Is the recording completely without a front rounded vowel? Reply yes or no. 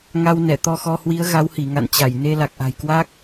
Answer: yes